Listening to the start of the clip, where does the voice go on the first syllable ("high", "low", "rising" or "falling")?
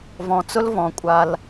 low